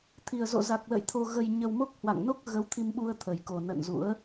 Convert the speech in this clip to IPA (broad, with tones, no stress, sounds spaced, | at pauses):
t̪ʰ i˨˩ ə̯ z o̰˧˨ z a˨˩ k̚ l ə̰˧˨ j t̪ʰ o˧ ɣ ə˧ j ɲ ə˧ w m o˦˥ k̚ h w a̰˧˨ ŋ n o˦˥ k̚ ɣ ə˨˦ w t̪ʰ i˧ m ɓ u˧ ə̯ t̪ʰ ə˨˩ j k o˨˩ n ə̰˧˨ n z ṵ˧˥ ə̯